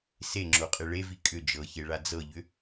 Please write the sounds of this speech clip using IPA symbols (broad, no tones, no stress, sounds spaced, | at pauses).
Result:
s e ŋ͡ǁ o qʼ e ɭ e v i kʼ ʏ d͡ʒ ɤ ç e ɭ a d͡z ɤ ʎ ʏ